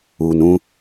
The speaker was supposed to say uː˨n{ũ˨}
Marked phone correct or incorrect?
incorrect